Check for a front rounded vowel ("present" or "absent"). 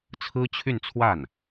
present